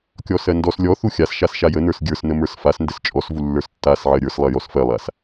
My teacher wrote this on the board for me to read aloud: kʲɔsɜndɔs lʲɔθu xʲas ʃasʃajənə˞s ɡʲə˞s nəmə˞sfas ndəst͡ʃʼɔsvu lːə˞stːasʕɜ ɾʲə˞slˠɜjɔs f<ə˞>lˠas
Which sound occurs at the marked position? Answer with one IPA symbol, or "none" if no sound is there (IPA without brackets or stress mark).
ɜ